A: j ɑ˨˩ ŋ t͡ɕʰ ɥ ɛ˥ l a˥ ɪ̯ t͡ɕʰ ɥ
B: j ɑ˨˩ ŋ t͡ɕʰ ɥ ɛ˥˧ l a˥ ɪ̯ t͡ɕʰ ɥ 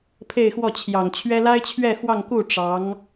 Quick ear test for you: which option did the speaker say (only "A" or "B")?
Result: A